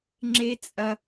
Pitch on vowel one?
high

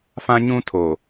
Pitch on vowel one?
high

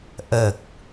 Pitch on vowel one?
low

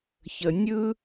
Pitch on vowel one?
low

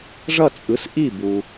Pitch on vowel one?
falling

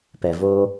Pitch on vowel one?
low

